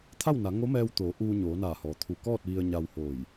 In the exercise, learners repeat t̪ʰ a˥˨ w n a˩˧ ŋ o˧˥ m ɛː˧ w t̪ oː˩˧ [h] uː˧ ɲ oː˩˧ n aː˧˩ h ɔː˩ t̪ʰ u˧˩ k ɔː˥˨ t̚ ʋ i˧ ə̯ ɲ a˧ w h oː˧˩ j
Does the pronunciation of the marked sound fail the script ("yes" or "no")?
yes